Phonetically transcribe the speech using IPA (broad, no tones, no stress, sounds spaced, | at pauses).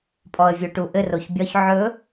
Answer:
pʼ ɔ ə̯ vʲ o ʈ u ʔ ɘ r o ç bʲ ɒ ç ʕ ɵ